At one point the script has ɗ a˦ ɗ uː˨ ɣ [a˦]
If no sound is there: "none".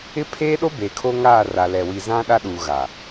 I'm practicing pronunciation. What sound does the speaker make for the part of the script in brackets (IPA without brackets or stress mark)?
a˨